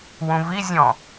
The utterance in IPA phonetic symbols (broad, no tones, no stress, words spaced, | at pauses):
wũvizʲɔ̃